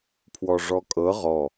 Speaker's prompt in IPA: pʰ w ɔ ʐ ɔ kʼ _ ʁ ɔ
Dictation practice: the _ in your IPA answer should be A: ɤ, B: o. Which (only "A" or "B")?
A